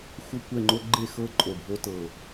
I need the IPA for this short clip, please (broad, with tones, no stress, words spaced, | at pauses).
xʷə˥˨kʷɛ˥˨ŋ͡ǃo˦˥ ɡ͡ǃe˥˨xɤ˦˥ ǃʼo˧˩bʱo˦˥tɤ˧˩